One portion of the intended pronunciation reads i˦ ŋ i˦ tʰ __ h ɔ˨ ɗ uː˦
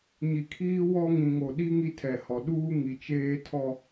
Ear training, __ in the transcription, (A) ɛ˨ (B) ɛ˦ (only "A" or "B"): A